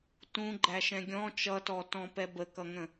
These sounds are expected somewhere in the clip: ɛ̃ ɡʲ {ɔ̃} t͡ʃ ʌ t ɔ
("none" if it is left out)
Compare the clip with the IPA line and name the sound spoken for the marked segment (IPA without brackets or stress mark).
ɔ̃